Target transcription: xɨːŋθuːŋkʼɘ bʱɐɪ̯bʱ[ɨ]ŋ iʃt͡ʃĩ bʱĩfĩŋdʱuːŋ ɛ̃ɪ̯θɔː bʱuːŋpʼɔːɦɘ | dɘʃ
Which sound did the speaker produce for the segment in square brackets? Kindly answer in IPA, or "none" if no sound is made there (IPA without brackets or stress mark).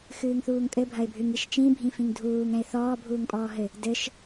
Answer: ɨ